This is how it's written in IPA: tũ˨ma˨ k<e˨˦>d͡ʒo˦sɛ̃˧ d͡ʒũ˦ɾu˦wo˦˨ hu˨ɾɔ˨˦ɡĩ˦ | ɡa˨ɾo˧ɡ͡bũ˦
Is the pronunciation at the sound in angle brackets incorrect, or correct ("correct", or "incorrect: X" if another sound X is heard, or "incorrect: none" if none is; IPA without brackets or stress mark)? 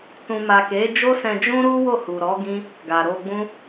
correct